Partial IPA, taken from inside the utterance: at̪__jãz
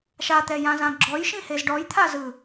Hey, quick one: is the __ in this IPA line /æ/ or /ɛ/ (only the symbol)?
ɛ